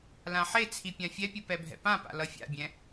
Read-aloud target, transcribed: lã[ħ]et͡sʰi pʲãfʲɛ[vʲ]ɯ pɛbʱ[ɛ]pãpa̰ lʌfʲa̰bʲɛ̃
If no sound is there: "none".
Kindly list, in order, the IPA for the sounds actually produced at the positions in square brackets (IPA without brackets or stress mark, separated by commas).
ħ, pʲ, ɛ̰